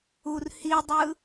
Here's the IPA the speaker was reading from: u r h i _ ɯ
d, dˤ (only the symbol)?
dˤ